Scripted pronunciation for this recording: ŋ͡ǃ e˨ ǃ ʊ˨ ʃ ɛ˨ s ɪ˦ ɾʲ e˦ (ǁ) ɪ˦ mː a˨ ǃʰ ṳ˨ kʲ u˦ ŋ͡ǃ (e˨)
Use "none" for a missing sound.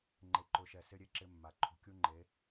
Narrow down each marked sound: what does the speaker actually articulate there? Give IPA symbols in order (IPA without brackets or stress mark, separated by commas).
ǁ, e˨˦